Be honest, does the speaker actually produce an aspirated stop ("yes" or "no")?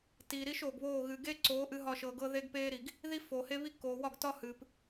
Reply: no